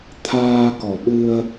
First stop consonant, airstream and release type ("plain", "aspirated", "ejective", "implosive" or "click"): aspirated